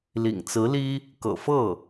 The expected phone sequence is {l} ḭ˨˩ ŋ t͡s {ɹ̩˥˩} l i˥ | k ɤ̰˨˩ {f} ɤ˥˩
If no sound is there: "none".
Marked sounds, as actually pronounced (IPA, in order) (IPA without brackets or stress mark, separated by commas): l, ɹ̩˧˥, f